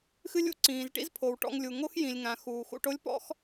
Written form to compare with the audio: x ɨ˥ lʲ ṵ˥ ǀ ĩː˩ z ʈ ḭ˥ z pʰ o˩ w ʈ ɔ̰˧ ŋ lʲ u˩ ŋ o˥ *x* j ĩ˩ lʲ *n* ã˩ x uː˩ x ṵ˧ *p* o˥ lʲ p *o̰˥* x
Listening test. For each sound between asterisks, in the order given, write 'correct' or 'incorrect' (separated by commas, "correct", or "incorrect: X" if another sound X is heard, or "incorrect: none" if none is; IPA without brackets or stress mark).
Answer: correct, incorrect: ŋ, incorrect: ʈ, incorrect: ɔ̰˥